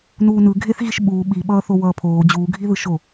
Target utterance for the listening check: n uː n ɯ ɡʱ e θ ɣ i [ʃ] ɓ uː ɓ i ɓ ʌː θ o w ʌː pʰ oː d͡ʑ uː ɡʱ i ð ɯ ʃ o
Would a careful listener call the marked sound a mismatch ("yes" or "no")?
no